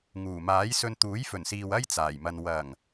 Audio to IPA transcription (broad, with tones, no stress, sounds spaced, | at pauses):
ŋ uː˨˩ m aː˨˥ j s ɵ˧ n t̪ uː˨˥ j f ɵ˨˩ n s iː˨ w ɐ˥ j t͡s aː˨˩ j m ɐ˧ n w ɐ˨˩ ŋ